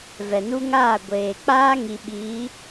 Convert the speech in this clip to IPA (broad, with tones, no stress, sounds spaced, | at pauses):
v ɛ˨ n u˦ ŋ aː˦˨ ɡʷ eː˨ k͡p aː˦ ŋ i˨ ɓ iː˨˦